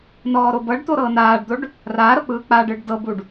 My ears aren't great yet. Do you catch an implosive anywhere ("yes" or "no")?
no